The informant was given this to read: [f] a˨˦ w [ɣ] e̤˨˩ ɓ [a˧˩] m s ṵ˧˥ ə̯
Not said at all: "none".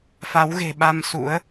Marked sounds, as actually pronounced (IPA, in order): f, ɣ, a˧

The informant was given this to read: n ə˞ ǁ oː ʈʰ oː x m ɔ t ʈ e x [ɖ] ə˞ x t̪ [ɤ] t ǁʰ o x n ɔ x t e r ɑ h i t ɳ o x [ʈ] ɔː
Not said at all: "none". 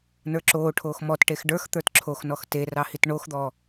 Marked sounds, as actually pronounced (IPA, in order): ɖ, ə˞, d̪

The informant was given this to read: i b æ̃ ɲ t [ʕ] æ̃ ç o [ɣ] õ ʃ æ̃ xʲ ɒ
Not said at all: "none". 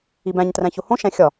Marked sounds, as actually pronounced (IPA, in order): r, h

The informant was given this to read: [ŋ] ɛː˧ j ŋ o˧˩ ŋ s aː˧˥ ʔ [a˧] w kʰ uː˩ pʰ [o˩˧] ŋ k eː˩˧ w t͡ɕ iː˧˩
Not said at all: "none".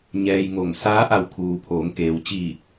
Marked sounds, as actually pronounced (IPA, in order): ɲ, a˧˩, oː˩˧

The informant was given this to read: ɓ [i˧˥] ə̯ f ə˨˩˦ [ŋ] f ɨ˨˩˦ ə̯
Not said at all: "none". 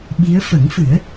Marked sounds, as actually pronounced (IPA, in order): i˧˥, ŋ

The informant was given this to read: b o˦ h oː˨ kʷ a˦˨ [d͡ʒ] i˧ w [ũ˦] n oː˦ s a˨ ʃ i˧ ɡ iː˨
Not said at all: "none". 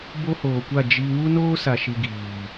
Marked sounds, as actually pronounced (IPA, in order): d͡ʒ, u˦

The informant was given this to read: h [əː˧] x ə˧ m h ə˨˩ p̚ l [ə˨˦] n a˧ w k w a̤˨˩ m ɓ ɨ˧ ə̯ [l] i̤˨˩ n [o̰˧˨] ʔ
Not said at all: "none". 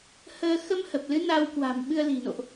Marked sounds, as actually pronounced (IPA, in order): əː˧, ɨ˨˦, l, o̰˧˨

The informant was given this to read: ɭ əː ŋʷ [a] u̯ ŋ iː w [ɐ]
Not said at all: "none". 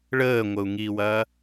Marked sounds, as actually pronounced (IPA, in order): ə, ɐː

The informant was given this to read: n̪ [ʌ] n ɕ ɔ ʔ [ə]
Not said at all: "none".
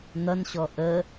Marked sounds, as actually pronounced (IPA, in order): ʌ, ə

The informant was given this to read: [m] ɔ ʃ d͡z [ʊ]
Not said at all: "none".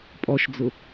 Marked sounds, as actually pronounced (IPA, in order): pʼ, ʊ

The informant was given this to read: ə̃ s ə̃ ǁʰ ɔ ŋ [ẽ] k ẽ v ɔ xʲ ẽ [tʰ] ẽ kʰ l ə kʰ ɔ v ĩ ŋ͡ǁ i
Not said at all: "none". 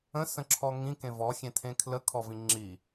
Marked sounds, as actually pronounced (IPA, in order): ĩ, tʰ

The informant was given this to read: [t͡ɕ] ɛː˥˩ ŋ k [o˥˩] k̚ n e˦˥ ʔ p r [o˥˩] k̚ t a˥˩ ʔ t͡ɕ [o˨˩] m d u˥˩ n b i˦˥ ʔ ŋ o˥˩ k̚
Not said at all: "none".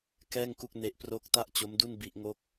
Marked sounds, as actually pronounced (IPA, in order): k, u˥˩, o˦˥, o˦˥

